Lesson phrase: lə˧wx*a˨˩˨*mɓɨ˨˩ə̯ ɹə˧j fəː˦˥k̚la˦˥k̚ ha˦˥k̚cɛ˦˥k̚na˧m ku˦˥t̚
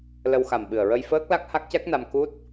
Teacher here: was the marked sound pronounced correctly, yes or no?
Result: no